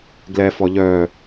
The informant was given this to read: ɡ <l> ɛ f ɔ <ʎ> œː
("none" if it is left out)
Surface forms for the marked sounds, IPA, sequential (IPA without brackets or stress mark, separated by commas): l, ʎ